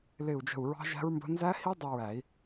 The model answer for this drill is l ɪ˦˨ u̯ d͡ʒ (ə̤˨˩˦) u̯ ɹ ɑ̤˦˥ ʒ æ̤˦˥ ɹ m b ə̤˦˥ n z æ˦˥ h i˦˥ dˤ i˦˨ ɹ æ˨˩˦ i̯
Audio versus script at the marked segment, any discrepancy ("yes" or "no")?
yes